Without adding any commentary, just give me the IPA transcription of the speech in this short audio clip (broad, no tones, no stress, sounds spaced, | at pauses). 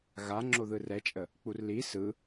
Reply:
ɣ a ŋ͡ǁ o ð ɯ r ɛ t͡ʃʼ ə | k͡p u r l i s ɯ